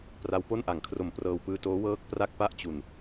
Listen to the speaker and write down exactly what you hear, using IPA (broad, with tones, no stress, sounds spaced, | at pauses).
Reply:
p r a˦˥ w p o˥˩ n ʔ a˩˦ ŋ kʰ r o˨˩ m p r ɤː˧ w p ɯː˧ t oː˦˥ w ɤː˦˥ k̚ p r a˥˩ k̚ p a˥˩ ʔ t͡ɕ u˨˩ n